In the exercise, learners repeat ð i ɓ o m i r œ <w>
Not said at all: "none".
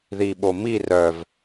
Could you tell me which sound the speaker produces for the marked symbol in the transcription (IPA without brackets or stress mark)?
v